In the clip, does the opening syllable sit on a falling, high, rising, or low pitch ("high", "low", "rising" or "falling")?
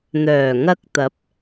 low